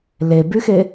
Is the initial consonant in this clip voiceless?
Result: no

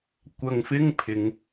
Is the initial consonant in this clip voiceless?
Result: yes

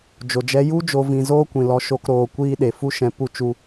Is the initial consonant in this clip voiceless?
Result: no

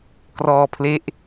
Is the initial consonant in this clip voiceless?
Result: yes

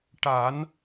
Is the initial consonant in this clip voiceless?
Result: yes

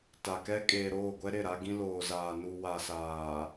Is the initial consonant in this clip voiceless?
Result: yes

